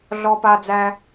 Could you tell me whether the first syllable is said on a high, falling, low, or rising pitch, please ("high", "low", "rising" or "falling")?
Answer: high